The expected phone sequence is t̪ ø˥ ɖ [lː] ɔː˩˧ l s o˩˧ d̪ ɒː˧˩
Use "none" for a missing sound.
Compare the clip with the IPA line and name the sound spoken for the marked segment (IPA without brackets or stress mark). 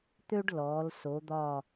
l